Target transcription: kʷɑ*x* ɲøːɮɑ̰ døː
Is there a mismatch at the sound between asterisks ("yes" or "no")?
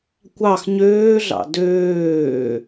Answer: no